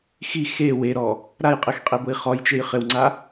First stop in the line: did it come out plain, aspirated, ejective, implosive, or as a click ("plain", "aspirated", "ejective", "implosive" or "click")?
ejective